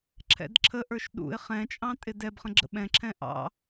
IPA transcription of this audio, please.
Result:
ǁʰ ɛ̰ d ǁʰ ə ʔ ə˞ ʃ ɗ ṵ ɪ̯ χ ɛ̃ t͡ʃʼ ɑ̃ tʼ ɪ d ɛ b χ ə̃ ɡ͡ǁ ə̰ ɓ ɛ̃ ǁʰ ɛ̃ ʔ ɑ̰

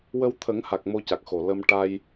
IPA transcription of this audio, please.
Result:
w ə˧ w t̪ʰ ə˨˩˦ ŋ h a˨˩ k̚ m o˧ c a˨˩ k̚ x o˨˩ l ə˧ m ʈ a˧ j

